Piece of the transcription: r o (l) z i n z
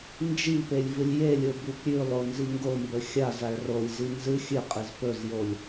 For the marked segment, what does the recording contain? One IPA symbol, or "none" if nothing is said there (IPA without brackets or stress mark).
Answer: lʲ